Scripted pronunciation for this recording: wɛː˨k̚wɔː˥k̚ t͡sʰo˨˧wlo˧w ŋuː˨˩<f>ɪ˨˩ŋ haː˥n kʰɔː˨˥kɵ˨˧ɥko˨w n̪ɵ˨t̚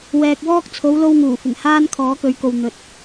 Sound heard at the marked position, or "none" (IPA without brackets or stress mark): f